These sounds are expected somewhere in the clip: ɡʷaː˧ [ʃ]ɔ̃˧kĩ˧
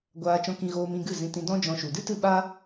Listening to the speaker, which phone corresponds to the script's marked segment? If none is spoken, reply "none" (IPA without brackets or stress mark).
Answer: t͡ʃ